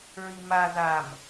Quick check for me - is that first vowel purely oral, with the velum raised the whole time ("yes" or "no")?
yes